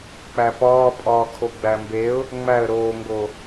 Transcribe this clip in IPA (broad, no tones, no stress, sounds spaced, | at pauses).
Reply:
k͡p æ p ɒː pʼ ɒː kʰ o ɡ͡b æ m b e ʊ̯ | ŋ͡m æ ə̯ ɾ oː ŋ ɡ o